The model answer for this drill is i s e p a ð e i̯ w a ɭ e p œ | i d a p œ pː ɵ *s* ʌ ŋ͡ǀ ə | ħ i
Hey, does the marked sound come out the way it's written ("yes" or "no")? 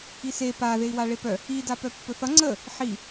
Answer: no